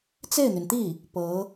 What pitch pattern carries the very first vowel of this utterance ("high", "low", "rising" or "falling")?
falling